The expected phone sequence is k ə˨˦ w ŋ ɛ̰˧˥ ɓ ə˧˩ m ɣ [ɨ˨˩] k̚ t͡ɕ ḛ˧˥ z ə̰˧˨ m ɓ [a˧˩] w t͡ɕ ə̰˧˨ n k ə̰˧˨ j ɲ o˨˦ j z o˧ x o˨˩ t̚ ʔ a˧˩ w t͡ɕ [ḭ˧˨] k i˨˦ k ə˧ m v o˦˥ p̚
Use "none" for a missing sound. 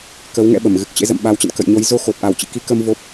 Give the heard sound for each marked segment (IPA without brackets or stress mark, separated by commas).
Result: ɨ˨˩, a˨˦, ḭ˧˨